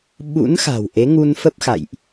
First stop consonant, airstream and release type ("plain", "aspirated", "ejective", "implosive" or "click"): implosive